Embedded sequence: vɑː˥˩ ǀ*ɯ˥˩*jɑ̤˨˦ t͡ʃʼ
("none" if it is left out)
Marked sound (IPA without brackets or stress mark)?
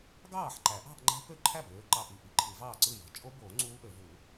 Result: ɯ˥˩